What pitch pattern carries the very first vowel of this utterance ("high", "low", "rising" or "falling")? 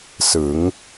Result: rising